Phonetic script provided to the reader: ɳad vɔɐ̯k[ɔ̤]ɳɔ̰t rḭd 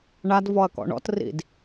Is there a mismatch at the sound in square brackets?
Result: yes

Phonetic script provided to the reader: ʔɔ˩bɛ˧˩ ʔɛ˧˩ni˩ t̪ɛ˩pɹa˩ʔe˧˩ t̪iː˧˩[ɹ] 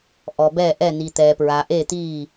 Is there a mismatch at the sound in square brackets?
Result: yes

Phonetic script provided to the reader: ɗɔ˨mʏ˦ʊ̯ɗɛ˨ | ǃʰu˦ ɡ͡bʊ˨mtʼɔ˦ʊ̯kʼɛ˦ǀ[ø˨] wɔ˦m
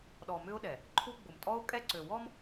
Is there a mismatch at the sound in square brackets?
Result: no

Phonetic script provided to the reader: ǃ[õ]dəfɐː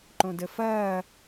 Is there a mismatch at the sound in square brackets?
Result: no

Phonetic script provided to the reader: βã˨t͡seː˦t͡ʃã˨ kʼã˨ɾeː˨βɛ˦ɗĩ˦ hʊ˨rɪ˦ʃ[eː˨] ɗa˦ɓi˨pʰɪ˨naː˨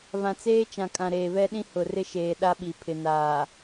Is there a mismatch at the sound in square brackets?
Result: no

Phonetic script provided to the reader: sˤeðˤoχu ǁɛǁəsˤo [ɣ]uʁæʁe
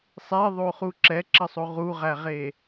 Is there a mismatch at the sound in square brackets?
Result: yes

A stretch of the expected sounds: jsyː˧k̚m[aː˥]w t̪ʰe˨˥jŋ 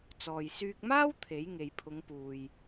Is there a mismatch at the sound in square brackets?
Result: no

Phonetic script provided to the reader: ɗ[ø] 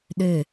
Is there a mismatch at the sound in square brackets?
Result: no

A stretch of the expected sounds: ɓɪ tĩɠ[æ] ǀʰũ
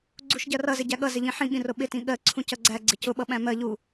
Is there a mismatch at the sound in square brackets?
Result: yes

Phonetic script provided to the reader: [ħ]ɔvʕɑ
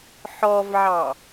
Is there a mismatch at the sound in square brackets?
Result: no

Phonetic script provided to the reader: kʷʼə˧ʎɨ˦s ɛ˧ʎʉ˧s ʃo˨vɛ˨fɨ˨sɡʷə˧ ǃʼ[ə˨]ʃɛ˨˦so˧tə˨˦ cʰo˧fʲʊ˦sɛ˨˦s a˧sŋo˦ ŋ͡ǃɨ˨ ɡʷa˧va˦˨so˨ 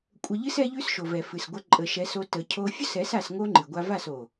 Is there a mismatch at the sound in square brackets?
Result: no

